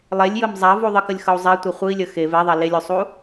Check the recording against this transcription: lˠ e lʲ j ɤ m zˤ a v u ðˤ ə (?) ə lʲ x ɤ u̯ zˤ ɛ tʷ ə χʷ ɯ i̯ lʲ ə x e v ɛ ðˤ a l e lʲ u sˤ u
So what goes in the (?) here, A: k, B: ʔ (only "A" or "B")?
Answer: A